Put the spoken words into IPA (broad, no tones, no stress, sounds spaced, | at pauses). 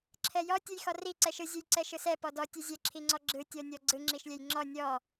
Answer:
ǁʰ ɛ j ɔ tʲ ɯ j x ɔ r i ǀ ɛ ʃ ɯ zʲ ɯ j ǀ ɛ ʃ ɯ s ɛ p ɔ d ɔ tʲ ɯ zʲ ɛ ǁʰ i ŋ͡ǀ ɔ ɡ͡ǁ ɯ tʲ ɔ nʲ ɔ ɡ͡ǀ ɯ ŋ͡ǁ i ʃ lʲ ɛ j ŋ͡ǁ ɔ nʲ ɔ